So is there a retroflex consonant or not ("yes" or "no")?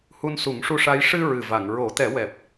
yes